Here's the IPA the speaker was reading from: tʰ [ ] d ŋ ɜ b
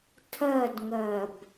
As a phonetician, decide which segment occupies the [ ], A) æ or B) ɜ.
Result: B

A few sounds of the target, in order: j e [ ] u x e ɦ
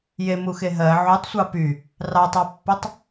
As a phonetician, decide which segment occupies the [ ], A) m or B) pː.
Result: A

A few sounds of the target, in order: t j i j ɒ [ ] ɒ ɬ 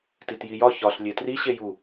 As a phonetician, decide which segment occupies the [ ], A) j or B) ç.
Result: B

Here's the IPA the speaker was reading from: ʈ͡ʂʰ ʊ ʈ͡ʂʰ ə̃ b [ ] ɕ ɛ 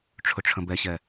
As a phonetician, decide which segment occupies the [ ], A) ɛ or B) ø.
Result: A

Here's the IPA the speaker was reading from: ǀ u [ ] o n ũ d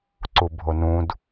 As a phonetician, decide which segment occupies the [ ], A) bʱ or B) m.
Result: A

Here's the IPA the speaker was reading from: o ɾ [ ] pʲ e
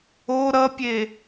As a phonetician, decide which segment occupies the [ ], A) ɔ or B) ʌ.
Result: B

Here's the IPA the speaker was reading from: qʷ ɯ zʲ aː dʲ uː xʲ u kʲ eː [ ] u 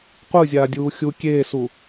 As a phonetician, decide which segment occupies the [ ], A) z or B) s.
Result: B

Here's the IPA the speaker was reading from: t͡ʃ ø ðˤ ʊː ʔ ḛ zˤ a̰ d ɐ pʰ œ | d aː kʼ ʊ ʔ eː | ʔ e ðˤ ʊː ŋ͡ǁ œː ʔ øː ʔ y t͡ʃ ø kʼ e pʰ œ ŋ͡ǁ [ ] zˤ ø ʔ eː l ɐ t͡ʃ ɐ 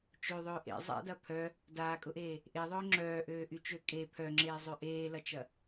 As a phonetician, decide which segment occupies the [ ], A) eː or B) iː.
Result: A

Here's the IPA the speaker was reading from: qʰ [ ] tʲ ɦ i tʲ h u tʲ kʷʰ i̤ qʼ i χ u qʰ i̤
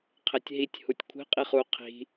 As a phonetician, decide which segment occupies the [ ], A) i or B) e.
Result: B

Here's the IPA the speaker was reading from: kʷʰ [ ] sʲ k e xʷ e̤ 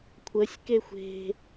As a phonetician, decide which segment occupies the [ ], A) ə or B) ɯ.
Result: A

